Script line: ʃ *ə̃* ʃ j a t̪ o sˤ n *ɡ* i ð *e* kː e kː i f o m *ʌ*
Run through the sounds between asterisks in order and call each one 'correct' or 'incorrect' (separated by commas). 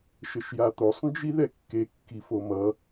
incorrect, incorrect, incorrect, correct